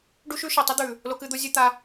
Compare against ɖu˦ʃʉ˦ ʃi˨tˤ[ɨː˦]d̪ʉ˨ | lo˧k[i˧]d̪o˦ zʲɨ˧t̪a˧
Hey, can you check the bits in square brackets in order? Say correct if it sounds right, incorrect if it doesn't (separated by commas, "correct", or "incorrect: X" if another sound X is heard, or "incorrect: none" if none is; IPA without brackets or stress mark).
incorrect: ɨ˦, incorrect: ɨ˧